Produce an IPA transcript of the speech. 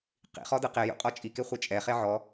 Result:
q ḭ χ ɔ d ɯ q e j ṵ qʼ ɔ t͡ʃʼ i k e χʷ ɛ t͡ʃʼ ɛ χ e ʕ ɔ

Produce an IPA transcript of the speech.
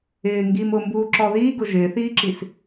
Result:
ɪː ŋ ɡ i m ʊ m b uː ǁ ɔ ð iː ɡ ʊ ʒ ɪː θ iː ǁ i s

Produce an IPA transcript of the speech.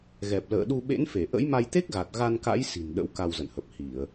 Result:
ɣ ɛ˨˩ p̚ l ə̰ː˧˨ ɗ u˧ ɓ ḛ˧˥ n f e˧˩ ʔ ə̰˧˥ j m a˧ j t̪ e˦˥ k̚ ɣ a˨˩ t̚ ɣ a˧ n k a̰˧˥ j s i̤˨˩ n ɗ ə̰˧˥ w k a˧ w z ə̰˧˨ n h ə˨˩ p̚ h i˧˩˨ ə̯

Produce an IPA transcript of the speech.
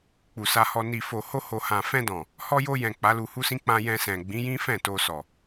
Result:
k͡p u˨ s a˧ h ɔ˧ n i˨ f o˨ h o˧ h o˨ h ã˨ f ɛ̃˧ d ɔ̃˨ | h ɔ˧ j o˧ j ɛ̃˨ k͡p a˨˦ l u˧ h u˦ s ĩ˦ k͡p ã˧ j ɛ̃˧ s ɛ̃˨ ɡ͡b ĩ˨˦ j ĩ˦ f ɛ̃˦˨ t o˧ s ɔ˨

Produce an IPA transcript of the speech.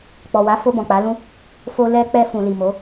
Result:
k͡p ɔ˨ w a˨˦ f o˧ b ɔ̃˨ k͡p a˨˦ l ũ˦ | f o˧ l ɛ˧ k͡p ɛ˧ f ũ˨ l i˨ m o˨˦

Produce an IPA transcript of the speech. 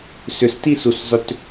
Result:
s ʏ s t i s u s zˤ ʏ t

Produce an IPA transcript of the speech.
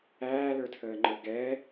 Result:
æː l ə˞ tʰ əː ŋ͡ǃ ə˞ ɡ ɛ

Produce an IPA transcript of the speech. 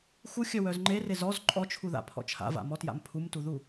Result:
x u xʲ œ w œ z ŋ͡ǃ e r e z ɔ z ǃʼ ɔ t͡ʃʰ u ð a̰ pʰ ɔ̰ t͡ʃʰ a̰ v a̰ m ɔ t j a̰ m pʰ u m t u ð u

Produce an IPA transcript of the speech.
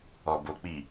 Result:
ɔ˨ b o˨ k͡p i˨

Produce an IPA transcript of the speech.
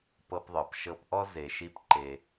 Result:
p ɤ˧ p ðˤ ɤ˩ p ʃ ɤ˧ p ʔ ɔ˥ z e˩ ʃ i˧ p ǃ e˩

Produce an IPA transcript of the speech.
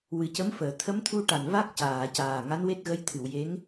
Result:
w ɨ˨˩˦ c ə˧˥ m f əː˨˩˨ t̪ʰ ə˧˥ m t̪ʰ u˧ ʈ a˨˩ n v a˦˥ k̚ c aː˨˩˨ c aː˨˩ ŋ a˧˥ n w e˦˥ t̚ ɣ ə˧˥ j t̪ʰ ɨ˨˩˨ w j e˧˥ ŋ

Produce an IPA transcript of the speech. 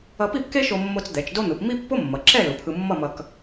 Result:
ʌ˧ p i˥˧ p k e˥ ʃ o˧ mː o˧ t͡s d̪ ɛ˩˧ t͡ʃ d o˥ n̪ ɯ˩˧ p m i˥ pː o˥ mː ʌ˩˧ ǁ ɛ˥˧ l u˩˧ pʰ ɯ˧ mː ʌ˥˧ m ʌ˧ k

